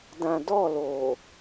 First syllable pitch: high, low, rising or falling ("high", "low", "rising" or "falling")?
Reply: low